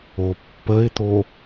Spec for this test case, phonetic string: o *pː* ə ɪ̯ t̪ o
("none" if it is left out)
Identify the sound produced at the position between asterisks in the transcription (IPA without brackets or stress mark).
pː